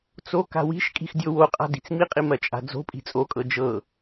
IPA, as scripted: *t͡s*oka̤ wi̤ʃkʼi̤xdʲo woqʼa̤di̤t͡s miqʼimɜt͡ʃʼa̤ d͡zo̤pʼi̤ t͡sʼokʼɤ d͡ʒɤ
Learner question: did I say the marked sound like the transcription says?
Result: yes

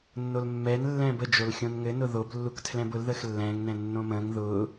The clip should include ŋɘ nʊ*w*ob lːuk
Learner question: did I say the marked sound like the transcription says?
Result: no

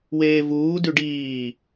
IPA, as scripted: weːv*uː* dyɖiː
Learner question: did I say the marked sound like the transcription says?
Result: yes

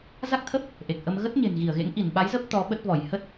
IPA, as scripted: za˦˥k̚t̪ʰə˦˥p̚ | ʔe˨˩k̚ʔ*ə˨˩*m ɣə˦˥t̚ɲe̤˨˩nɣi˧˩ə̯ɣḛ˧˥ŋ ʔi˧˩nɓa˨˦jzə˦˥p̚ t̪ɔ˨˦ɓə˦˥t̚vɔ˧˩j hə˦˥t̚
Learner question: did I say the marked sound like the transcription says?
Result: no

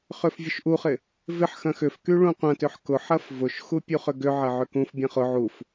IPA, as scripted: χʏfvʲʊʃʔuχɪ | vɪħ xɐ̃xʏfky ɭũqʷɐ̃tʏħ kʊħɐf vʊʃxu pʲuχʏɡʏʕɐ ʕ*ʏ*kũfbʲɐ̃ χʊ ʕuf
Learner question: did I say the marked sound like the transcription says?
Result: yes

